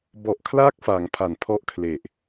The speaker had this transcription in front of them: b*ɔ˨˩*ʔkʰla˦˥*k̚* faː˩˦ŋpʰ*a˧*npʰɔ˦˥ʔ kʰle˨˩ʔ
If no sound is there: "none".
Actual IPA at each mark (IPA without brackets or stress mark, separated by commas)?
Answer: ɔ˨˩, k̚, a˩˦